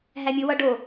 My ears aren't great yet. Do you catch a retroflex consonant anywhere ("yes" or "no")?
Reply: yes